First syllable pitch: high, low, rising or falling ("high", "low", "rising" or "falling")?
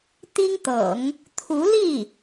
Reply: high